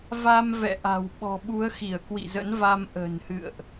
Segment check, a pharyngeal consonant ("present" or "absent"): absent